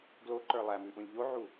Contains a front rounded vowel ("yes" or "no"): no